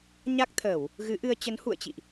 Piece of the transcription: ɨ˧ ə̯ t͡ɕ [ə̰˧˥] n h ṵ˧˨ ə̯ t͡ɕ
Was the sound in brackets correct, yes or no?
no